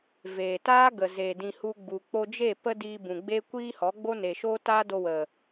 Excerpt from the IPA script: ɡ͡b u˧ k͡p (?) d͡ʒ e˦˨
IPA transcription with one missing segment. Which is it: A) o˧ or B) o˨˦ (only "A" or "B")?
A